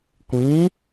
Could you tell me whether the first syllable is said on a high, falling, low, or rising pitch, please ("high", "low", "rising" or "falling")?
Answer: rising